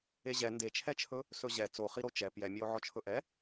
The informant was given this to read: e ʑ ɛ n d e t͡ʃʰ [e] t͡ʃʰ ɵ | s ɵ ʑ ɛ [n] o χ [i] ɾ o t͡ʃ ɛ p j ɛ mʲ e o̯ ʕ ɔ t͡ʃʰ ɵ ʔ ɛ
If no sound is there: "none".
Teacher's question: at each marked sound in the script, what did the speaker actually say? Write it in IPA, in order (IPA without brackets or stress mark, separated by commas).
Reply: ɛ, t͡s, i